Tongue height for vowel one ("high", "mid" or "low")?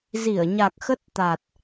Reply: high